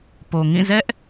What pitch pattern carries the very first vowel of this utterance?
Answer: low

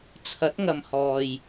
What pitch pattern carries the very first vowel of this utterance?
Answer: rising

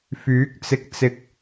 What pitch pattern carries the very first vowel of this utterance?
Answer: rising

